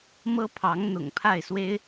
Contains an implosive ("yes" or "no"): no